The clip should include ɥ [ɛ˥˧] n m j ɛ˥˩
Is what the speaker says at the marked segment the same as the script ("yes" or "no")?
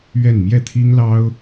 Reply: yes